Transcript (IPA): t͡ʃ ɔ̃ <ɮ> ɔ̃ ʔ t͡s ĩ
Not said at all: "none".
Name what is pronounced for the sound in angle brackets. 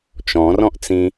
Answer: r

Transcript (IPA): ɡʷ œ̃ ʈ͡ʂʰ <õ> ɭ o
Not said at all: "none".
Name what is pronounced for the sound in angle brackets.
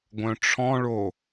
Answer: ɔ̃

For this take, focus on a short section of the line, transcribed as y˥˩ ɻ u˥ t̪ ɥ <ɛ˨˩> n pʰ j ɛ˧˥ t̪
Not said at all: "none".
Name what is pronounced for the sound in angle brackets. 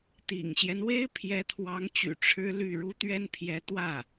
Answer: ɛ˥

